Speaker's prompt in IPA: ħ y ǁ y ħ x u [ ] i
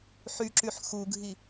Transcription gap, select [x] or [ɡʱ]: ɡʱ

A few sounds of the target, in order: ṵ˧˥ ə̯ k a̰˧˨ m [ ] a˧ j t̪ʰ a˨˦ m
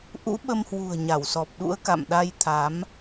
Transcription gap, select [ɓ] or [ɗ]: ɗ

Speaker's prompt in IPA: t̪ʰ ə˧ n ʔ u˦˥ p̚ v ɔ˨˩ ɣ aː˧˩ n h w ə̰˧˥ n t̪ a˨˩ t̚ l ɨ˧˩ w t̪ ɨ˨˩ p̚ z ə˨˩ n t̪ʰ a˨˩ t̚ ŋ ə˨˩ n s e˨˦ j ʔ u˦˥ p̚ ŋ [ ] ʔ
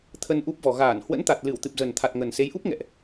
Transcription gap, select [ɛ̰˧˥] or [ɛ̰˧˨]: ɛ̰˧˨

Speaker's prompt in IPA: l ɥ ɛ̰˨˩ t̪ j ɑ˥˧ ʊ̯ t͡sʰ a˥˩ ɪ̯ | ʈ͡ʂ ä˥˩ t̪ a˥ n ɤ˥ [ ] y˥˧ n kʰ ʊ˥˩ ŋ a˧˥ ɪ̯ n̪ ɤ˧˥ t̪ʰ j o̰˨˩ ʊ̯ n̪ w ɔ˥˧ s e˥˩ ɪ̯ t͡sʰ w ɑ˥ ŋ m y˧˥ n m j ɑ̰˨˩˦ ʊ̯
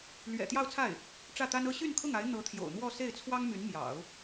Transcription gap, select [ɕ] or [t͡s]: ɕ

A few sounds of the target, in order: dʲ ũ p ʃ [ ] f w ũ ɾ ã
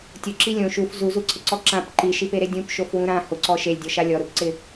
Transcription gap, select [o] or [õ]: o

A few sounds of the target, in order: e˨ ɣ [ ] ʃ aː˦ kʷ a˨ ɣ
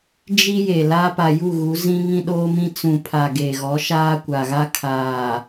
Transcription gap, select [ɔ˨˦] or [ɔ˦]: ɔ˨˦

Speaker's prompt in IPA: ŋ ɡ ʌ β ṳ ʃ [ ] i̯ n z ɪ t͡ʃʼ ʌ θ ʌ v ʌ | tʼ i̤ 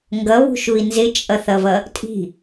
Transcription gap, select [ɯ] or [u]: u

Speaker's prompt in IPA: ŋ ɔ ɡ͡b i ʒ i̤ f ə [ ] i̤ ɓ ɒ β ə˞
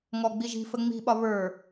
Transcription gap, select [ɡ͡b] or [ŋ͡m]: ŋ͡m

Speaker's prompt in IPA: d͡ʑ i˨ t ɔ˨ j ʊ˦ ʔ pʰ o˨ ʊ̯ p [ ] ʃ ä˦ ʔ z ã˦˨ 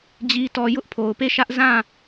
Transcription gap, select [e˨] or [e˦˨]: e˦˨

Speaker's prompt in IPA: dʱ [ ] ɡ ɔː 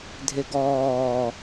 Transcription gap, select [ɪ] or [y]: ɪ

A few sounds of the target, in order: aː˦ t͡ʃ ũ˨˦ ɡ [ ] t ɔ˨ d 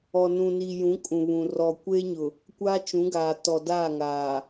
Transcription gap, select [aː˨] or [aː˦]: aː˨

